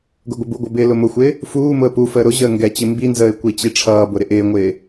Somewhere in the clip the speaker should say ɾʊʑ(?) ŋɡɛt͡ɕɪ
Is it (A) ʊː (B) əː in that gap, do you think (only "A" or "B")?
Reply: B